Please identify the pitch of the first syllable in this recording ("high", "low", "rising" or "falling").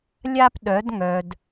high